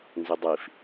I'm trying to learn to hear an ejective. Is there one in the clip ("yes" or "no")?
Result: no